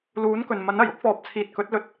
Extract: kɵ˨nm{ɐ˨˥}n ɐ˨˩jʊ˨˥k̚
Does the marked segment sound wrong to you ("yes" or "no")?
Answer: no